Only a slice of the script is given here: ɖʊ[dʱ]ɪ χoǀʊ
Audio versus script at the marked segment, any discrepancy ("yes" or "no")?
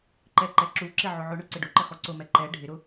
yes